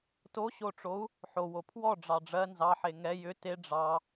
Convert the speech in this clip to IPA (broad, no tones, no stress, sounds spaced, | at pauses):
t o ɕ o ʈ͡ʂ o u̯ | ħ o w o pʰ w ɔ ɖ͡ʐ ɑ ɖ͡ʐ ɜ n z ɑ ħ e ŋ ɛ j ʏ t e ɖ͡ʐ ɑ